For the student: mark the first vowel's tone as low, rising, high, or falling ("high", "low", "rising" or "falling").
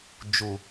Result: low